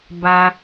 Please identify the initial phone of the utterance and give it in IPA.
b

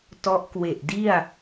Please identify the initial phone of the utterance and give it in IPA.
t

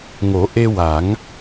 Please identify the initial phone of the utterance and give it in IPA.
ŋ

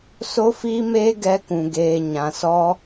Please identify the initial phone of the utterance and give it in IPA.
s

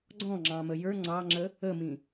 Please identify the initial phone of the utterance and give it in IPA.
ɡ͡ǀ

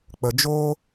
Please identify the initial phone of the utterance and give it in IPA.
k͡p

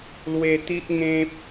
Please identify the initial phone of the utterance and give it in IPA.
l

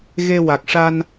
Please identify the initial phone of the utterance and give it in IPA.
ɣ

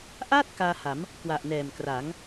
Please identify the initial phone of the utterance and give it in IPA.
ʔ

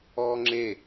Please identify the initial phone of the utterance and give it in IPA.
ɔː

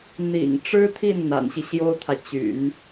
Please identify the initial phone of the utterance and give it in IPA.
n̪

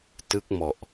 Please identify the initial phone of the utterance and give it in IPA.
t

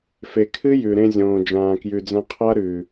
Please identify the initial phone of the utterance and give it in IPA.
f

